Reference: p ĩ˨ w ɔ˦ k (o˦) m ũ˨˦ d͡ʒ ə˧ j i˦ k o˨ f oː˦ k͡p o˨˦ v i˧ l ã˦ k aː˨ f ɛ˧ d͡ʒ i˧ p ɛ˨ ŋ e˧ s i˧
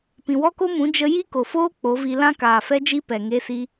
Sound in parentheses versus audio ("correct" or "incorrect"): correct